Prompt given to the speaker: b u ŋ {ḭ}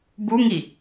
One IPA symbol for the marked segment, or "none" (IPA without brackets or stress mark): i